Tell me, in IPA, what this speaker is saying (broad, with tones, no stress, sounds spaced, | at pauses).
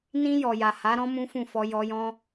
n ĩ˧ j ɔ˨ j a˨ h a˨˦ ɾ ɔ̃˦ m ũ˦ f ũ˦˨ f ɔ˧ j ɔ˧ j ɔ̃˦